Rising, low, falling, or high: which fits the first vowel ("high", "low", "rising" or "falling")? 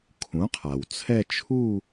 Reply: rising